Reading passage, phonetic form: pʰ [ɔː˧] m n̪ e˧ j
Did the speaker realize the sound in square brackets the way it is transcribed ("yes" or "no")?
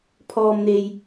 yes